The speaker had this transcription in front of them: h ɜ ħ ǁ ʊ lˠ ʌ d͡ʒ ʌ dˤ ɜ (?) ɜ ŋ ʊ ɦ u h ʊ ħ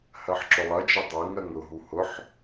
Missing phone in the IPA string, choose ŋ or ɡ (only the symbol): ŋ